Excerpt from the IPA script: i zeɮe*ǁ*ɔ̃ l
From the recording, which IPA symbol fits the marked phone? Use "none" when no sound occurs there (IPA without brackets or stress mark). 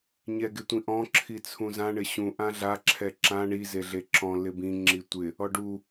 ǁ